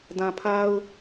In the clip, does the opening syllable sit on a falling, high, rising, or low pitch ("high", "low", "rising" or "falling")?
low